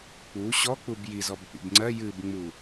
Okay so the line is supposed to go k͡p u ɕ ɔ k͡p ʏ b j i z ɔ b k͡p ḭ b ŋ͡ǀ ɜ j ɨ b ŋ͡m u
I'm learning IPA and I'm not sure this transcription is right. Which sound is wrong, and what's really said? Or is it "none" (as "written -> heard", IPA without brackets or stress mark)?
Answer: ʏ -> u